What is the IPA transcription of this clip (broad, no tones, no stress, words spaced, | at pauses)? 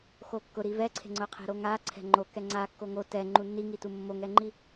xokːʊ ɾivɛǀʰe̤ ŋ͡ǀʊqʰe̤ɾoŋa ǀʰɛ̤ŋ͡ǃokɛ ŋ͡ǀakːo ŋo tɛŋ͡ǃu nːiŋitu mːoŋɛŋ͡ǃi